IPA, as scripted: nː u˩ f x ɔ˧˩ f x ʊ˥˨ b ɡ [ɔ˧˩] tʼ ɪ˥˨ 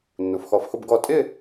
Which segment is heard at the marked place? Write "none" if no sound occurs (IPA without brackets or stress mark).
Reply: ɔ˧˩